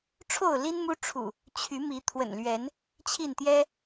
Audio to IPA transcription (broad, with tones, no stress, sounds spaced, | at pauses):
ʈ͡ʂʰ o˥˨ ʊ̯ l i˦ n m u˦ ʈ͡ʂʰ ṵ˨˩ | t͡ɕʰ y˨˦ m i˨˦ t̪ʰ w ə̰˨˩ n l ɥ ɛ˨˦ n | t͡ɕʰ i˥˨ n t̪ j ɛ˦